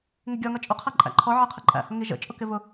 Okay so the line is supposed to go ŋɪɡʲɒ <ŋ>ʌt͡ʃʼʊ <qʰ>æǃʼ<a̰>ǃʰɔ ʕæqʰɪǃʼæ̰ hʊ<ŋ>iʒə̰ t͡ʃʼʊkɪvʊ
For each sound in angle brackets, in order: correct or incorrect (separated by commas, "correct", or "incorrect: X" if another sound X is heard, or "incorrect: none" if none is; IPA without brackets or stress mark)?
correct, correct, incorrect: æ̰, correct